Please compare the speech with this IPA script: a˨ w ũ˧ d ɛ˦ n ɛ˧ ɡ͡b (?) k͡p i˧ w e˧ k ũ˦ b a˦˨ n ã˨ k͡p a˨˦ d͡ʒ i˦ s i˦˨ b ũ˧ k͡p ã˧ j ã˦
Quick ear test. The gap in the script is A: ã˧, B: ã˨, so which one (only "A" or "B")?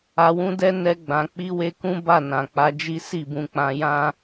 B